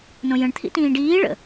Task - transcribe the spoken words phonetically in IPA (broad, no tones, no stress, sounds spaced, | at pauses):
n õ j ə̃ ɳ t̪ʰ ḭ t ĩː ɖ iː ɭ ə̰